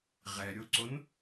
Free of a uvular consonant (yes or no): no